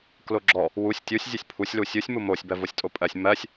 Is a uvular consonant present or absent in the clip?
absent